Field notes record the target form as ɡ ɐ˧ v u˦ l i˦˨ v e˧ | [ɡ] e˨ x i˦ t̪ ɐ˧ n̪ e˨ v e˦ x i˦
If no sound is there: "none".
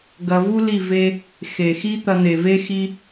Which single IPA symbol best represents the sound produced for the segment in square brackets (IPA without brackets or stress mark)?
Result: x